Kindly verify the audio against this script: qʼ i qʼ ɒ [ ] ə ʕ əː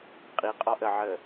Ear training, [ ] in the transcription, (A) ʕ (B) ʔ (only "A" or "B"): B